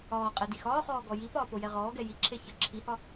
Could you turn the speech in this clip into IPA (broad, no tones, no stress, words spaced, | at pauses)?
ɒːqʼɛ dixɒːχɔː ɡɔjipɒː pojɛʁɔːɡɛ jiǁʰe çə ǁʰihɒ